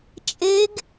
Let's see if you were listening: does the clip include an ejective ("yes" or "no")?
yes